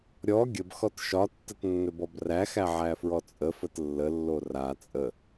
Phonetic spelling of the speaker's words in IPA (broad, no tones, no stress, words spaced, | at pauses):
ɾʲɔ ɡʲəbxɔt ʃɒtːətnːɵbɔb ræxæʕæfɹɔ t͡sʼəfət lːəlːo ra t͡sʼə